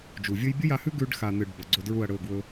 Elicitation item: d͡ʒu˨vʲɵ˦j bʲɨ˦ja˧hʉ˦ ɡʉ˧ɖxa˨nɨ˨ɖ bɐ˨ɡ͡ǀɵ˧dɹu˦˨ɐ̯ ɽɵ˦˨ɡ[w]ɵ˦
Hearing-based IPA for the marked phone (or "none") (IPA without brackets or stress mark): w